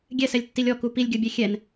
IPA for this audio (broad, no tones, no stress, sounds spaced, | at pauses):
ɡʲ ɛ s ɛ lʲ tː i lʲ ɔ k u p i lʲ ɡʲ ɤ bʲ e xʲ ɛ n